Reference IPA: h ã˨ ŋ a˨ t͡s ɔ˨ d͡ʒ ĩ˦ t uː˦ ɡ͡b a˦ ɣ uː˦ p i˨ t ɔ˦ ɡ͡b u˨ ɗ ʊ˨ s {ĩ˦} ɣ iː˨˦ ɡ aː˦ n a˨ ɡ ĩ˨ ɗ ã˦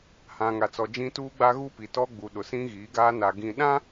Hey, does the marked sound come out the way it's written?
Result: yes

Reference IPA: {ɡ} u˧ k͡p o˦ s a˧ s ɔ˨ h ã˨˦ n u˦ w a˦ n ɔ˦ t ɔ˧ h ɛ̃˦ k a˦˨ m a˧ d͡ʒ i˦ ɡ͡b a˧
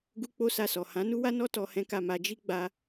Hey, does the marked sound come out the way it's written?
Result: yes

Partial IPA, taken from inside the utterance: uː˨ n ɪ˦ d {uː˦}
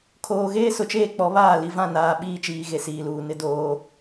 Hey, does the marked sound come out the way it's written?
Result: no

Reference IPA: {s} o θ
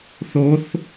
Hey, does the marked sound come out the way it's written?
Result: no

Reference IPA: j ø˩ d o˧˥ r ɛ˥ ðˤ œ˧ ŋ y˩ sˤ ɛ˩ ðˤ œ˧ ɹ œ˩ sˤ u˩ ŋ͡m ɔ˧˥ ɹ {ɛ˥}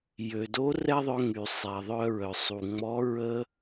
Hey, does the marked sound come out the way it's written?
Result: no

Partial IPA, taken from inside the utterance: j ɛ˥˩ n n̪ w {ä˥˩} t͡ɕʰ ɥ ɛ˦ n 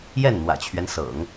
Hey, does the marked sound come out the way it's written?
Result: no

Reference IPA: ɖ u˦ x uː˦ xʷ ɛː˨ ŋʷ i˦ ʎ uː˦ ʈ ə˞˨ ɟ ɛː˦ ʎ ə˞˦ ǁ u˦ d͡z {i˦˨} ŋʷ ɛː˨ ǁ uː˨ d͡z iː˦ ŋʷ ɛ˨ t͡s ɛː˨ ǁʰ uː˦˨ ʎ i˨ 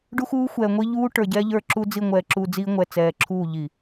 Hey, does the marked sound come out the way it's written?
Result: yes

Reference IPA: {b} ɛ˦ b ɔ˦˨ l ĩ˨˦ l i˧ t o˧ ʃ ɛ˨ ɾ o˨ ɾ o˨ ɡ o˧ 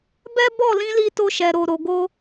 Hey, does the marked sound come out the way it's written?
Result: yes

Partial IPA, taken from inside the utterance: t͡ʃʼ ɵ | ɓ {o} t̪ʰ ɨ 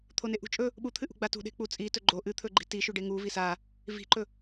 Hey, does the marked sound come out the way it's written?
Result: no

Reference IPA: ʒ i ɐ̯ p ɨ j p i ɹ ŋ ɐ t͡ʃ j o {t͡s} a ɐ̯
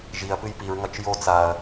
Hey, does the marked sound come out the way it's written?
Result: yes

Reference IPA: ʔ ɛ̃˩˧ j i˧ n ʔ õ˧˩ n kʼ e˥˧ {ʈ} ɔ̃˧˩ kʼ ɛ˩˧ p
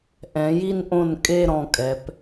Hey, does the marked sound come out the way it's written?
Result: no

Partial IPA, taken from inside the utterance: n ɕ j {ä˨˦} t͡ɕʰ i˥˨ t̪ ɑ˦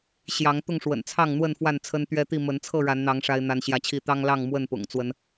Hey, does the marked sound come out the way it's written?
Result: no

